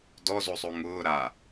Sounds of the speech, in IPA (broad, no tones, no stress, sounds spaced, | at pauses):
d ɔ z o sˤ o ŋ ʊː ɾ a